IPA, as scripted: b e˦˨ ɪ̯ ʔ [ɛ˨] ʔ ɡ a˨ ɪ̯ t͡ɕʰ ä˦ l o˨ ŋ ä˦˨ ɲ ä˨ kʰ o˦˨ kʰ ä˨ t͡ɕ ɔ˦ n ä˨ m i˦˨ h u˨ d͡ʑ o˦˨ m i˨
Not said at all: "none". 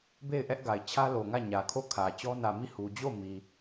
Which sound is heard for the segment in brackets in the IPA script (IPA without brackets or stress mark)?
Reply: ɛ˦